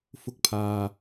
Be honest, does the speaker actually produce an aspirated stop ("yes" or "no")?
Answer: yes